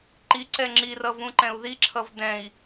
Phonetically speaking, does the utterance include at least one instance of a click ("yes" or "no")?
yes